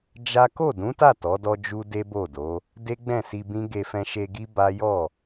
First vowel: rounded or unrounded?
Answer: unrounded